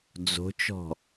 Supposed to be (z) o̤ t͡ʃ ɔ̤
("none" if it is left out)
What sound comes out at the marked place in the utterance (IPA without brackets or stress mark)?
d͡z